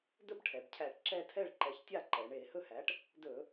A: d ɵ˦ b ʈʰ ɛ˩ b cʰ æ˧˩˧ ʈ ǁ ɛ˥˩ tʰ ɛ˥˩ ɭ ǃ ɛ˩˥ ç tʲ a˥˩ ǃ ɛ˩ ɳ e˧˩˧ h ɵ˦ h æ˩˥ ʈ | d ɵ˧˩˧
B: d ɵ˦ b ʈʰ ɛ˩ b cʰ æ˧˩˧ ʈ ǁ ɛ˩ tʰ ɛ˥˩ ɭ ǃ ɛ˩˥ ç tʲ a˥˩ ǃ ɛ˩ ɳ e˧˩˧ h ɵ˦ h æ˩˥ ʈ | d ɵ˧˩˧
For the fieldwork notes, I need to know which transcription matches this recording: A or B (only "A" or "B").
A